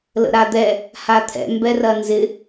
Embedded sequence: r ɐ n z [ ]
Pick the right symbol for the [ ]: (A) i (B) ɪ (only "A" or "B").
B